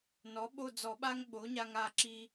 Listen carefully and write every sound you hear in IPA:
n ɔ˩˥ ɓ o˦˨ d͡z ɔ˨˩˦ ɓ a˦ ŋ ɓ o˩˥ ɲ a˦ ŋ a˦˨ ǁ i˦

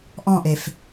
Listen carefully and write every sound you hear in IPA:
ʔ ɔ̃ ʔ e f

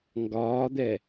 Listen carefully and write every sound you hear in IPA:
ŋ ɡ ɒː d̪ ɛ

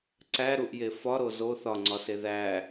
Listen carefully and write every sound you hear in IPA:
ǀ æ ɾ u ʔ j e f ɒ ɾ o z o θ ɒ ŋ͡ǀ ɒ s e ð æ

